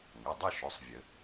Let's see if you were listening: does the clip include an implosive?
no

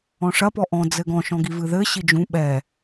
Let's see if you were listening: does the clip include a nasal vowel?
yes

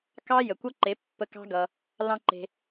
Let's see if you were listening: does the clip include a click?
yes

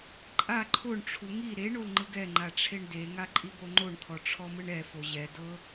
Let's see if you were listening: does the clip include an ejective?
yes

